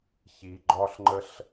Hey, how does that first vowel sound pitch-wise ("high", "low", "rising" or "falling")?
low